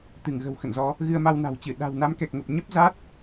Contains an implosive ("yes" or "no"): yes